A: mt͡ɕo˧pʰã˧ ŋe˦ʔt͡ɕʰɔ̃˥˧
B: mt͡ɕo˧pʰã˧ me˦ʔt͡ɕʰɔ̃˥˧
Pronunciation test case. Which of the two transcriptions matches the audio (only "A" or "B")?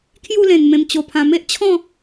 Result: B